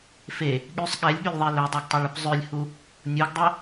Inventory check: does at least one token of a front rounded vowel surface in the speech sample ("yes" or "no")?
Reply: yes